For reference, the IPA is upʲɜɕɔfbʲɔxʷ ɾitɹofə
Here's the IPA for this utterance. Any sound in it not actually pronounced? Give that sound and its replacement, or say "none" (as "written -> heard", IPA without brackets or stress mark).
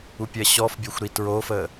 none